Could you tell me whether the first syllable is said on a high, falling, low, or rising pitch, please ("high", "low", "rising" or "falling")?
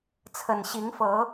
low